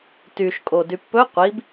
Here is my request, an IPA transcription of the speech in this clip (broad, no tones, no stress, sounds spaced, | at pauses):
t y ʃ kʼ o d y pː ɵ qʷ i b